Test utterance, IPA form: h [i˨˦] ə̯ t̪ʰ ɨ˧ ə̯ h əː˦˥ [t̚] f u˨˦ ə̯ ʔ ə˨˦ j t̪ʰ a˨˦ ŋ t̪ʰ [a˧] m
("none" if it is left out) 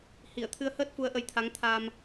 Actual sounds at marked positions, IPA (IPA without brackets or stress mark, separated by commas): i˧˩, t̚, a˧